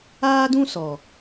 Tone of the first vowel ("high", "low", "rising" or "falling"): high